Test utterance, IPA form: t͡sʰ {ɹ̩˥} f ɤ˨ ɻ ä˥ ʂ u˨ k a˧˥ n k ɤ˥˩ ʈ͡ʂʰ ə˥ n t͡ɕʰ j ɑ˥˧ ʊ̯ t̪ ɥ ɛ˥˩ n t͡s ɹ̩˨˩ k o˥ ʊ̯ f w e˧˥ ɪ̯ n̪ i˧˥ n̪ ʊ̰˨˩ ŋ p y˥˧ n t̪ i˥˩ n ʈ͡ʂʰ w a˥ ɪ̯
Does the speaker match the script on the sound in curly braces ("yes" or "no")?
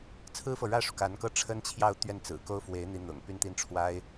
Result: yes